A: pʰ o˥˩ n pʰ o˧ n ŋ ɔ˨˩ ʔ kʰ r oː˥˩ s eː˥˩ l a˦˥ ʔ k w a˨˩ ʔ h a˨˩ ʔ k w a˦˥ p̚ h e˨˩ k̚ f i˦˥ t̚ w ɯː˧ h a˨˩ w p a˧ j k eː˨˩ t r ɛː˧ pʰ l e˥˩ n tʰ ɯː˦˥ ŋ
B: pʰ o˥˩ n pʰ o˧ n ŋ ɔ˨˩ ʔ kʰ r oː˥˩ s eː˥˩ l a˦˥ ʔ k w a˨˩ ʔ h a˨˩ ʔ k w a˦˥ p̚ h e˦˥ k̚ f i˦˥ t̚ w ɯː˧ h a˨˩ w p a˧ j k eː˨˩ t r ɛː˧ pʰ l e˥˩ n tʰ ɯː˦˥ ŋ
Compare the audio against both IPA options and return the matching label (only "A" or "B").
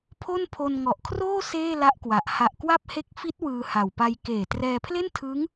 B